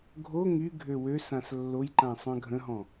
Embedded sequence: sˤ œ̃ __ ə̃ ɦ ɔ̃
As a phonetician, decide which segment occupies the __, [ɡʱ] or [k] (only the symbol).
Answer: ɡʱ